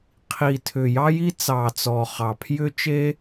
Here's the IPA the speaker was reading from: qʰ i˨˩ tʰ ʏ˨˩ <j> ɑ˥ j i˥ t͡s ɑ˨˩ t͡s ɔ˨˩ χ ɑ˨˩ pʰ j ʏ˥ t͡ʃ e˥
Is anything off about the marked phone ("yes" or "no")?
no